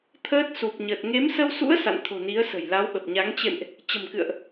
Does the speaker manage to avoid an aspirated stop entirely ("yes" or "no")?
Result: no